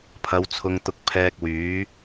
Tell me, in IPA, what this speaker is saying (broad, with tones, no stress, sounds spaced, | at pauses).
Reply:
pʰ ɐ˨˧ w t͡sʰ ʊ˨˧ ŋ t̪ ʊ˧ k̚ pʰ ɛː˧ k̚ w yː˨˥